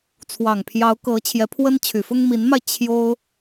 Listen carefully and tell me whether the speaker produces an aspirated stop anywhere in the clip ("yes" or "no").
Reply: yes